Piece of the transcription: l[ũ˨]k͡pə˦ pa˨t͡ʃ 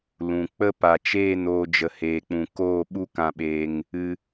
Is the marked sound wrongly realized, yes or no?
no